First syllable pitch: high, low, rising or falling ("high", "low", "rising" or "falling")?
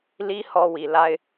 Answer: high